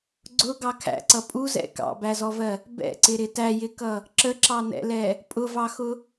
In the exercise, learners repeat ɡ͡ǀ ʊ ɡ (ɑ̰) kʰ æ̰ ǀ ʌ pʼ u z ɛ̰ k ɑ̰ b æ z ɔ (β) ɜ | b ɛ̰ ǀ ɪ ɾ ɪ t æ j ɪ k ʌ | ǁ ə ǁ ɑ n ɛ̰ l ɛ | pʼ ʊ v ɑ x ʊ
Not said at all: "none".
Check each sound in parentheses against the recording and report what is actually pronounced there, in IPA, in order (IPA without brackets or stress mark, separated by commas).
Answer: ɑ, v